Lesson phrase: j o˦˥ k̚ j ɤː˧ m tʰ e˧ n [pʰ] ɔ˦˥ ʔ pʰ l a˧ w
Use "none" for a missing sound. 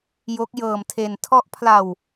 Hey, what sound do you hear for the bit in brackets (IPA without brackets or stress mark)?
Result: tʰ